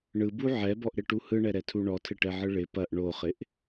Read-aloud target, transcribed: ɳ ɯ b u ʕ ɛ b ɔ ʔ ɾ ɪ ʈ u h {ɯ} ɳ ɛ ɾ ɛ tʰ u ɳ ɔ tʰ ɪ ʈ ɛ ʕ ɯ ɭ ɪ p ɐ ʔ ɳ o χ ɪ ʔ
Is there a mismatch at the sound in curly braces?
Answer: no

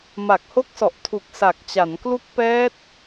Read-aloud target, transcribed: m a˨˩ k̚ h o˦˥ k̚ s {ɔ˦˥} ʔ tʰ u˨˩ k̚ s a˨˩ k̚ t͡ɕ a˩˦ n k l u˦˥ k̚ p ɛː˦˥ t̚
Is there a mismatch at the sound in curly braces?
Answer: yes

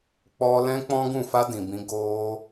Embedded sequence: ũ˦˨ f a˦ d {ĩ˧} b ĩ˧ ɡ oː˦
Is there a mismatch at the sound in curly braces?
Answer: yes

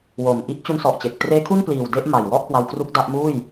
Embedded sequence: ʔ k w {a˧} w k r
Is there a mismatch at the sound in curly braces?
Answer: no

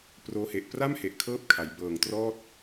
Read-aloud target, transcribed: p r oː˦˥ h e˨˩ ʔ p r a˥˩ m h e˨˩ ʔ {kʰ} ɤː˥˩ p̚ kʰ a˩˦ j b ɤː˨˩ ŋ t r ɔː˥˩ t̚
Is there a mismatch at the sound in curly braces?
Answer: no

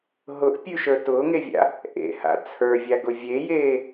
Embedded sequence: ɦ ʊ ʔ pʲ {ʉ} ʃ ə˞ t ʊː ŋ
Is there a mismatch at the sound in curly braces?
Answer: no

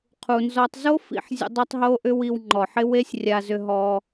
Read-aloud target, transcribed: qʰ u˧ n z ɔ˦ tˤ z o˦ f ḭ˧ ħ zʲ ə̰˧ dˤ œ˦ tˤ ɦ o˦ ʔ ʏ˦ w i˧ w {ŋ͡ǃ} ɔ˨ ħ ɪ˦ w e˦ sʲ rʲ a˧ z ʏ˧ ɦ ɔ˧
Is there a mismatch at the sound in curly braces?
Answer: no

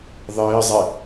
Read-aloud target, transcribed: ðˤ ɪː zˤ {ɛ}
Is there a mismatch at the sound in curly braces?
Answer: no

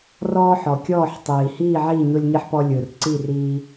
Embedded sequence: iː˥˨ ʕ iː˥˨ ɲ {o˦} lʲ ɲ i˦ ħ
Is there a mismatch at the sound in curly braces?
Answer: no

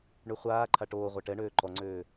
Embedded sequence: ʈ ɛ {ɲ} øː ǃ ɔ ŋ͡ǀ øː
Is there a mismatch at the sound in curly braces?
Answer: yes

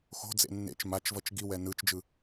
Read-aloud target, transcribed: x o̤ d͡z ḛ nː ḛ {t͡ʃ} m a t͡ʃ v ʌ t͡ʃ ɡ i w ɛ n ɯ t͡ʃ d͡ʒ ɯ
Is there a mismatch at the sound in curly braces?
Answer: no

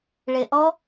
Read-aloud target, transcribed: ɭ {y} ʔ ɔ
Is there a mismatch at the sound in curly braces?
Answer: yes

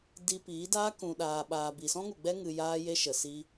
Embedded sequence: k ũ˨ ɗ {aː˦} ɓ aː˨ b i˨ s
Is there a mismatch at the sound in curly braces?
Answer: yes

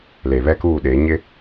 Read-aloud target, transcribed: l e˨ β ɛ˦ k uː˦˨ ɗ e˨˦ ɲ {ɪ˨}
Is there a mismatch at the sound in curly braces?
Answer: yes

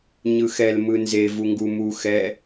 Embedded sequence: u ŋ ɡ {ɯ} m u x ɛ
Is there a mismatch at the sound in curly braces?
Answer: yes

